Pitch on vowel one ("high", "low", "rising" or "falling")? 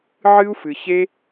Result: high